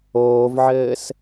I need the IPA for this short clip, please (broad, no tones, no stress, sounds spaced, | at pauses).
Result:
oː v ʕ ɘː s